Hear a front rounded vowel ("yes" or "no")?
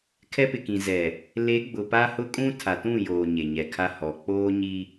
no